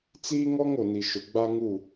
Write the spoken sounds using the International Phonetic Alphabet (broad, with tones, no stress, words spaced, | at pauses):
t͡siː˦ŋɔ˦ŋ o˨ni˨ʃʊ˨ ɡ͡ba˦ŋu˦˨